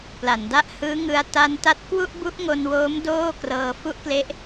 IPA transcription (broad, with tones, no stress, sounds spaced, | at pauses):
p l a˩˦ n d a˥˩ ʔ h ɯː˦˥ ŋ ɯ˧ a̯ t a˧ n t a˦˥ t̚ k w u˥˩ ʔ b u˦˥ ʔ ŋ o˧ n w oː˦˥ m d oː˥˩ k r ɤː˧ f u˦˥ ʔ k l e˦˥ ʔ